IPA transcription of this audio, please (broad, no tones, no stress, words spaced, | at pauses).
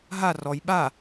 ɦa rɔj ɓa